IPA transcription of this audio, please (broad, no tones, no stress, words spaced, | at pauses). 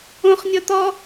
õχnʲɔ t̪ɔ